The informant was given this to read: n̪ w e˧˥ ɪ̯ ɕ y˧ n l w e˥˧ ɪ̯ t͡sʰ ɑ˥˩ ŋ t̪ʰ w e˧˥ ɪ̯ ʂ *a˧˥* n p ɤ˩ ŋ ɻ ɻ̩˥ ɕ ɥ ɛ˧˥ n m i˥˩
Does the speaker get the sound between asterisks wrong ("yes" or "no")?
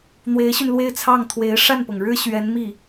yes